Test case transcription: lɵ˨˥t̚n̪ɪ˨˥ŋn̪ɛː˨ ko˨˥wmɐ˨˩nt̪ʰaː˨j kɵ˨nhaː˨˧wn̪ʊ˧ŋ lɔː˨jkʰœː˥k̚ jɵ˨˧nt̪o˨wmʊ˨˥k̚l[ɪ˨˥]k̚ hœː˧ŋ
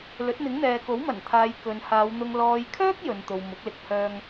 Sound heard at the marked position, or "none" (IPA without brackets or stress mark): ɪ˧